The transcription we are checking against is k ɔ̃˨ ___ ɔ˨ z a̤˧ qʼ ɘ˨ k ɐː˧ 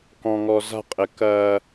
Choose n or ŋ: ŋ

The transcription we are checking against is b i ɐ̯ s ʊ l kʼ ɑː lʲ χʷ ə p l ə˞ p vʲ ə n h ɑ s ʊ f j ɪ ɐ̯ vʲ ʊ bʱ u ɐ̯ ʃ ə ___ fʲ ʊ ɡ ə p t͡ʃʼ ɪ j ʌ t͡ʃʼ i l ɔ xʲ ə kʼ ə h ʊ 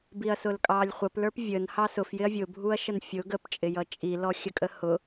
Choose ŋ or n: n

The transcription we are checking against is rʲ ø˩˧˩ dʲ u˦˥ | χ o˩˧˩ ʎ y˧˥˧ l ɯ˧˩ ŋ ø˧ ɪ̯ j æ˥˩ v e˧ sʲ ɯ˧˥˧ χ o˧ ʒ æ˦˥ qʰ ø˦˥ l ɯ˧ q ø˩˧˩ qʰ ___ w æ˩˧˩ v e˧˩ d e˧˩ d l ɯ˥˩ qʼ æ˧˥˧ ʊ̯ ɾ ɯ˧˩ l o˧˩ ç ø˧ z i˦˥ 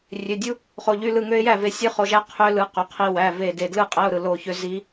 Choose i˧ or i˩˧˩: i˧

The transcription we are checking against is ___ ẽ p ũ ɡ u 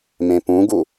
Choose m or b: m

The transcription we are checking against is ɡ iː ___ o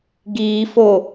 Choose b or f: f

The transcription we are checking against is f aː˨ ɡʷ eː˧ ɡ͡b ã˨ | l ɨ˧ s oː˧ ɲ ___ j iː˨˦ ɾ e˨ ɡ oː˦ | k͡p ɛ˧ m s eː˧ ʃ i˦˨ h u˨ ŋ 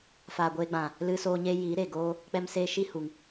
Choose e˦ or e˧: e˦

